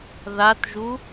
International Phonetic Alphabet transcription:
ð a t ʒ u

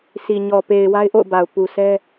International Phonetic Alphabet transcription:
sʰ i˨ ɲ ɔ˨ p e˨ ɪ̯ w a˦ ɪ̯ ʔ o̰˦˨ ʊ̯ b a˨ ʊ̯ p u˨ s ɛ˦

